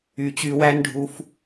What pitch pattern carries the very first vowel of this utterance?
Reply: low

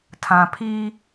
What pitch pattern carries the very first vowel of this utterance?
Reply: low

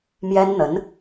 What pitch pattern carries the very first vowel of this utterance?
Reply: high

